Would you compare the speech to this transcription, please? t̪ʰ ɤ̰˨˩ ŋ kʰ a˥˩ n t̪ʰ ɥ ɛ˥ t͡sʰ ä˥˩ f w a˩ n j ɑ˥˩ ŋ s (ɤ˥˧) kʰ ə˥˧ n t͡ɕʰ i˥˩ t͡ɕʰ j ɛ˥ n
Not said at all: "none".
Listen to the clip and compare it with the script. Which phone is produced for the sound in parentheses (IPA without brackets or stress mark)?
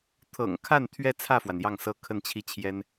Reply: ɤ˥